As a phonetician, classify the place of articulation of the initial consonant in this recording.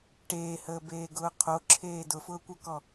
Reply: retroflex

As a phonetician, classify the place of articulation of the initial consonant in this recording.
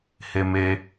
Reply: glottal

